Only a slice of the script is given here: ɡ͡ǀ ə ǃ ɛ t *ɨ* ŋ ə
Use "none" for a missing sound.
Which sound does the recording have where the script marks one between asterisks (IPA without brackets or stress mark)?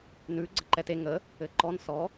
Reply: e